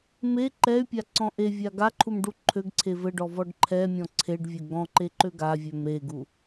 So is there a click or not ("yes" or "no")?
yes